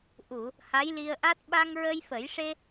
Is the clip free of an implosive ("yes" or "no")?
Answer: no